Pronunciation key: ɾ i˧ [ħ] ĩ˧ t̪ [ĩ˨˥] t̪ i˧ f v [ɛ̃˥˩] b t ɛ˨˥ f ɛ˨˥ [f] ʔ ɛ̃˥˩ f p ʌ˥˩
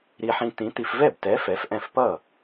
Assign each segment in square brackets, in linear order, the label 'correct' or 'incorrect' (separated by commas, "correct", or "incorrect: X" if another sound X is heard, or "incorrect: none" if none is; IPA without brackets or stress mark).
correct, correct, incorrect: ɛ˥˩, correct